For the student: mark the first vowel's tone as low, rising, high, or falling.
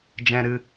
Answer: low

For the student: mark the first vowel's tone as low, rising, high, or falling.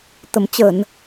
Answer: low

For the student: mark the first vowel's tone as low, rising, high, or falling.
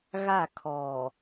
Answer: falling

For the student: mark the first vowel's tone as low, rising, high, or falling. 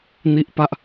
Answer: low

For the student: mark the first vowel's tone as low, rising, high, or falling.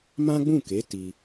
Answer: high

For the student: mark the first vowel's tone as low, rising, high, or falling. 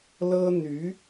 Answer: high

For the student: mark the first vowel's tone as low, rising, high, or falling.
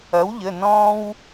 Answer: rising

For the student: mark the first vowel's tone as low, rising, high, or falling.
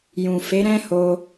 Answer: low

